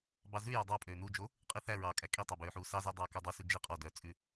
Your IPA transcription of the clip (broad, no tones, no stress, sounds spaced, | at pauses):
b ɑ z ʉ j ɔ dˤ ɑ pʼ øː n u d͡ʒ o | qʼ i θ æ ɹ ɑː kʼ æ kʼ i tˤ o b øː ħ uː s ɑ z æ dˤ ɑː k œ dˤ u s ʉ d͡ʒ i qʼ ɔ d œ t͡sʼ ʉ